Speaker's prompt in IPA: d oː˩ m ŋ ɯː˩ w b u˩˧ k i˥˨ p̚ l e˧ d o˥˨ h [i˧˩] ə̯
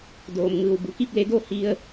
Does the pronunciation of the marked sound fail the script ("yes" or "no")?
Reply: yes